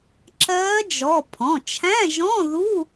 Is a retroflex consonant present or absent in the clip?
absent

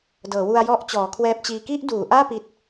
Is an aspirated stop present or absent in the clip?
present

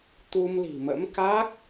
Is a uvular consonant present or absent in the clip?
absent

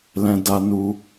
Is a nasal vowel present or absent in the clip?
present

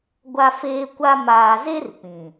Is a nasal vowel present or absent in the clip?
present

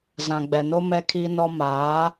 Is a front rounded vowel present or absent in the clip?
absent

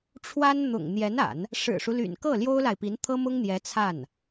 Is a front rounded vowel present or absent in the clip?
present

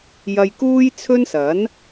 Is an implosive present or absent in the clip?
absent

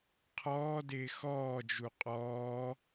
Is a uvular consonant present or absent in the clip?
present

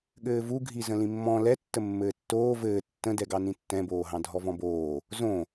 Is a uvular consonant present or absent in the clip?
absent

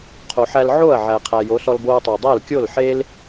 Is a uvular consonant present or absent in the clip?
present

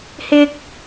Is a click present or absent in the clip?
absent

